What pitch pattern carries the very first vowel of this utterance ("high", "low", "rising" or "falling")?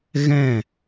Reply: falling